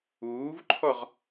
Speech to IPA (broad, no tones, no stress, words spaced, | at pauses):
uːvǃʰɔʁ